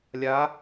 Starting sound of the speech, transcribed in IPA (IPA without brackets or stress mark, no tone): lʲ